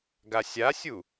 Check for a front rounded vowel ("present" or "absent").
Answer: absent